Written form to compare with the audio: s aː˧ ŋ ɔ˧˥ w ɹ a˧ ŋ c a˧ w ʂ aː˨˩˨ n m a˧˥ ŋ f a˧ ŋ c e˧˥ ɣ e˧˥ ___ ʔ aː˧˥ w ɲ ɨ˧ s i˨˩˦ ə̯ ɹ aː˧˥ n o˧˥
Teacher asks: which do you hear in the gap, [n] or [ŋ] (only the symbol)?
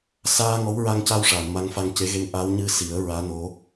ŋ